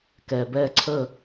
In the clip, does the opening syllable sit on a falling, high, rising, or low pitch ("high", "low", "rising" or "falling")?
low